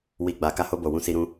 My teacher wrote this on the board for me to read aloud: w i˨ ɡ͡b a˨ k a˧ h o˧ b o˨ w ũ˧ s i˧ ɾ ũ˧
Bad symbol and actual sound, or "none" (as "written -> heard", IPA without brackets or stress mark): none